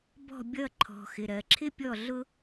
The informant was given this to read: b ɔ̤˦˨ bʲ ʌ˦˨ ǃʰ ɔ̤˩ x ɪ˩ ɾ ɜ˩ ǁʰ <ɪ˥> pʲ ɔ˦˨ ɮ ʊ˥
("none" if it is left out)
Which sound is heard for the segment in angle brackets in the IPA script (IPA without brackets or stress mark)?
ɪ˥